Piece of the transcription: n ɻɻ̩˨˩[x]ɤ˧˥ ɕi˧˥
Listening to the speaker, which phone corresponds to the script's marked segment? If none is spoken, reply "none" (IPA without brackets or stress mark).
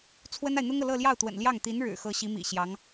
x